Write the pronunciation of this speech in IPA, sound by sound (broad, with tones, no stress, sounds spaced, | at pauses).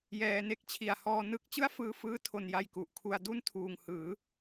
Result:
j ɛː˧ n e˥˩ k̚ t͡ɕʰ i˨˩ a̯ h ɔː˧ n ɯ˦˥ k̚ t͡ɕ ɯ˥˩ a̯ f ɯː˧ f ɯː˦˥ tʰ o˧ n j a˧ j k u˨˩ ʔ kʰ u˧ a̯ d u˥˩ n tʰ uː˨˩ ŋ h ɯː˩˦